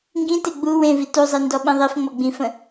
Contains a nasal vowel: yes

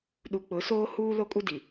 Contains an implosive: yes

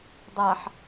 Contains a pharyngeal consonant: yes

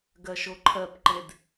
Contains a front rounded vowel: no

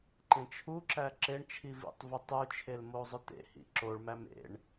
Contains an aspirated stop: yes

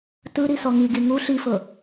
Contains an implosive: no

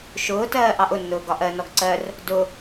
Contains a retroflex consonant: no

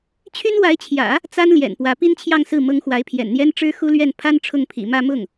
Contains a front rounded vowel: yes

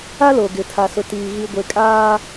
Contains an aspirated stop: yes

